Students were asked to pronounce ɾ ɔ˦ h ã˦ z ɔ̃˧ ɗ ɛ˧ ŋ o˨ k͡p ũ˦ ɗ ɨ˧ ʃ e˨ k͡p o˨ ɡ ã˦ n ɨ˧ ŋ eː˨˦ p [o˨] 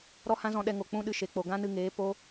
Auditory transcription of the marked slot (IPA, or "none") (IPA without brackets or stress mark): o˧